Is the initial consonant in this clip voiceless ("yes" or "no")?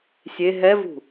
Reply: yes